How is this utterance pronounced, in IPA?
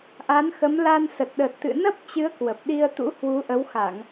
ʔ a˨˦ n x ə˨˦ m l a˧ n s ə˨˩ t̚ ɗ ə˨˩ t̚ t̪ ɨ̰˧˨ n ə˦˥ p̚ t͡ɕ ɨ˨˦ ə̯ k w ə˨˩ p̚ ɗ i˧ ə̯ t̪ ṵ˧˥ h w u˨˦ ʔ ə˨˦ w x a˧˩˨ ŋ

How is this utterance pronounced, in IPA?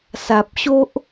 s a˨ p̚ ɕ o˦ ʔ

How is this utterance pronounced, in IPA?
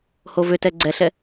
h o v ʏ t ɛ ɡ͡ǀ ɛ ɬ ɛ

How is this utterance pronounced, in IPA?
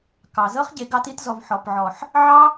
k ɑ˨ z ɤ˦ χ ɟ e˨ ɡ ɑ˧ t i˧ t z ɔ˨ v ħ ɔ˨ p ʕ ɔ˨ ħ | ʕ ɑ˦

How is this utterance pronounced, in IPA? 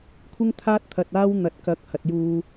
kʷʰ ɪ˥ ŋ t̪ʰ aː˥ t̚ t̪ʰ ɐ˧ t̚ aː˥ w n̪ ɐ˨˥ t̚ k ɐ˨˥ k̚ h ɐ˨ t̚ j uː˧

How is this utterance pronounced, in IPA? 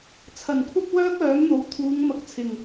t͡sʰ ɐ˨˩ n kʷʰ ɐ˧ p̚ w œː˥ k̚ œː˨˥ m n̪ o˨ w t̪ʰ uː˨˧ ŋ m ɐ˨˥ k̚ t͡sʰ ɪ˨˩ ŋ

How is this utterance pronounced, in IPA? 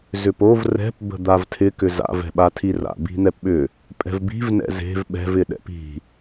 z ʏ p o v r ɛ̤ p b ə̤ d̪ a v tʰ ɪ k ʏ z a̰ v ɛ̤ ɓ a tʰ i r a̰ b i̤ n̪ ɛ p ɓ ʏ | pʼ ɛ̤ v b i̤ v n ɛ̰ z e̤ v ɓ ɛ̤ v ɪ ɗ ɛ̰ p i̤

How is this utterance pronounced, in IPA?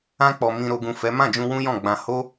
ã˧ k͡p ɔ˨ m ĩ˨ ɾ o˨ ɡ ũ˨ f ɛ˨˦ m ã˦˨ d͡ʒ ũ˧ w ũ˦ j ɔ̃˦˨ ɡ͡b ã˧ h o˦

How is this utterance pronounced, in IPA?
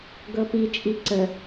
ɡ ɤ p i t͡ʃʼ i ǀ ə

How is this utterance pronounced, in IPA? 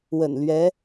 w ə̰˨˩ n l ɥ ɛ˧˥

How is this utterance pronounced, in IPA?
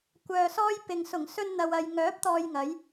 kʷ œː˧ s ɔː˥ j p ɪ˨ ŋ s ʊ˨˩ ŋ s ɵ˧ n n̪ ɐ˨ w ɐ˨ j ŋ œː˨˥ p̚ t̪ ɔː˧ j ŋ ɐ˨˥ j

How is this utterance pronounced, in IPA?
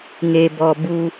ŋ e˧ b ɔ˧ b u˧

